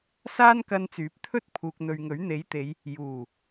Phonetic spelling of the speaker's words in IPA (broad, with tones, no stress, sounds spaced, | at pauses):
s aː˥ n k ɐ˧ n t͡s yː˨˥ p̚ t̪ʰ ɵ˥ t̚ pʰ uː˨ k̚ n̪ ɵ˨ ɥ ŋ ɵ˨˥ ɥ n̪ e˨˥ j t̪ e˨˧ j | j uː˨˩